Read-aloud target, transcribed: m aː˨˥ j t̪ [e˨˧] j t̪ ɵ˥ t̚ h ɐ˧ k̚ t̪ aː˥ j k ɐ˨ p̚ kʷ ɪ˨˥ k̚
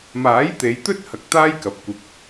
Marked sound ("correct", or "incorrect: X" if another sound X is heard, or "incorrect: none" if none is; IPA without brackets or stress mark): correct